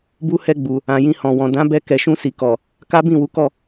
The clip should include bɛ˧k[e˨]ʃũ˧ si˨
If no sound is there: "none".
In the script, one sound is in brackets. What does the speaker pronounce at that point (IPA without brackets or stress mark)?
ɛ˨